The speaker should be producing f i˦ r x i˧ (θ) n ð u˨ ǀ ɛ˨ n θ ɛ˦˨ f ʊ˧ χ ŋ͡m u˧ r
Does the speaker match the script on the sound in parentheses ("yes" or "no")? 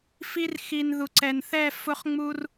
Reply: no